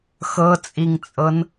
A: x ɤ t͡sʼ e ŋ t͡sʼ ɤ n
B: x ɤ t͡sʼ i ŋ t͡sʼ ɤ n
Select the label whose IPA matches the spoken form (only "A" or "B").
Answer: B